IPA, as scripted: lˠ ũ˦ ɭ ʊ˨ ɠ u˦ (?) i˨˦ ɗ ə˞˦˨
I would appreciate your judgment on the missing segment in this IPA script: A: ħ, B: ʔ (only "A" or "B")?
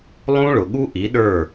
B